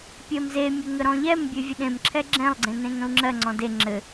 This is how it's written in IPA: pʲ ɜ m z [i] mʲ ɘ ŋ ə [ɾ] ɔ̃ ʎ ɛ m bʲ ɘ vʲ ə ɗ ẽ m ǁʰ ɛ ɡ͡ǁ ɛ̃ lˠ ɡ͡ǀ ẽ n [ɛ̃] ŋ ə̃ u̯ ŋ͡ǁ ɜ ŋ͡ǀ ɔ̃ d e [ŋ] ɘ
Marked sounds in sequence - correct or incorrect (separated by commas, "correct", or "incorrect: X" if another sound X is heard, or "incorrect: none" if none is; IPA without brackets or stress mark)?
incorrect: e, correct, incorrect: ẽ, incorrect: ŋ͡ǁ